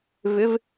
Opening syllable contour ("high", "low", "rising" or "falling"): rising